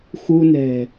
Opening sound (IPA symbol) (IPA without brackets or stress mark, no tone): x